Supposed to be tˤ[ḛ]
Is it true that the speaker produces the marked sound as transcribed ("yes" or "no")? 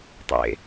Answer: yes